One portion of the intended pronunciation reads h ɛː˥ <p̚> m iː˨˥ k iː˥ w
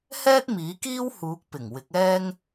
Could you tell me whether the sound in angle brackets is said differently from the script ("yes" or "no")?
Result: yes